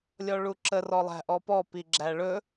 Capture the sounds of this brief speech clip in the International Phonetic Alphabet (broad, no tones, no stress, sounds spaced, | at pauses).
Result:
lʲ ɔ ɭ u ǁ ə r ɔ lˠ æ̤ ʔ ɔ p ɔ p i ɡ͡ǁ æ ɭ ɵ